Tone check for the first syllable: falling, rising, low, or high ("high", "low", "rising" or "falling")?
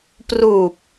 low